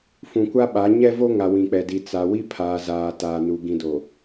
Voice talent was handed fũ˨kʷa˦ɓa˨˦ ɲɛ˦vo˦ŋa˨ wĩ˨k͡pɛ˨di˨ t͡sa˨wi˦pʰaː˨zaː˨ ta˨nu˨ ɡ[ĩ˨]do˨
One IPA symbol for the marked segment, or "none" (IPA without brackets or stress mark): ĩ˨